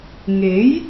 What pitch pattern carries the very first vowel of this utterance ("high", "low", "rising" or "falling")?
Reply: rising